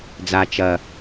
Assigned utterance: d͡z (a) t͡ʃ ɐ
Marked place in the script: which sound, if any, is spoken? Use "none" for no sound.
a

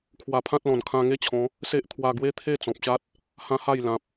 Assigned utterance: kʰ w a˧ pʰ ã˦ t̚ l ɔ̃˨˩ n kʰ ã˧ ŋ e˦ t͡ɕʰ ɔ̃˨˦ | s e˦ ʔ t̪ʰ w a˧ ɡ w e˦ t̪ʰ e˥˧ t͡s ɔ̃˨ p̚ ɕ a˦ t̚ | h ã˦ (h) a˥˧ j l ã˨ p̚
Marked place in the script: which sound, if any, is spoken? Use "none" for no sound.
h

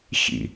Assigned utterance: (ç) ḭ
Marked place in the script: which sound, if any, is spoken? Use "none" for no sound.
ç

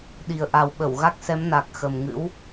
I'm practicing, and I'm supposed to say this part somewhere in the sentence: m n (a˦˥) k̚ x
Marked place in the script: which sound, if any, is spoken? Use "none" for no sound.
a˨˩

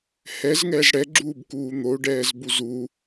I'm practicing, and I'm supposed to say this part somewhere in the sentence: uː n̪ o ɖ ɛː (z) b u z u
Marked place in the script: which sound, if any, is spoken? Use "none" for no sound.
z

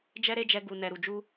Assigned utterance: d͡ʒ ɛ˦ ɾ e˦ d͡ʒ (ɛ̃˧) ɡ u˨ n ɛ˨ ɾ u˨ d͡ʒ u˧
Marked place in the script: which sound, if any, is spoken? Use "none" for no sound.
ɛ˧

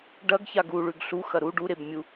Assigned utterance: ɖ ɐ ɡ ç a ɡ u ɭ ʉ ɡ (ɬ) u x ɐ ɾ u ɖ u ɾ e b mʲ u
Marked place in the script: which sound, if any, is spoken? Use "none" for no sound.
ɬ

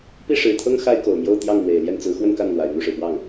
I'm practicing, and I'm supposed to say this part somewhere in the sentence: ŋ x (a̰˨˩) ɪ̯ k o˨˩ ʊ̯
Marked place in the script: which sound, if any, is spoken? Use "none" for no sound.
a˥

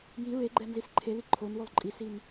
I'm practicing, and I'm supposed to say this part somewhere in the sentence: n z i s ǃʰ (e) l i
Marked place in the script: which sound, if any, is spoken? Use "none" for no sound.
e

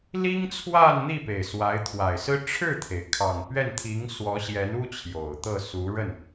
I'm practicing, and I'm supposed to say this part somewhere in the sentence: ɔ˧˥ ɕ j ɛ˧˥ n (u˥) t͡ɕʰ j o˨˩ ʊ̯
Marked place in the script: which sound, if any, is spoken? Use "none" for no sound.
u˥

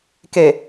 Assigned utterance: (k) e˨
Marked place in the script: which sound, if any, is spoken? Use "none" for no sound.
k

